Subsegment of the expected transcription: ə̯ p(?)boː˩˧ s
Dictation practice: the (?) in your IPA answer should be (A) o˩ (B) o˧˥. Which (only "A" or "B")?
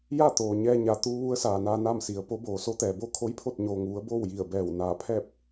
B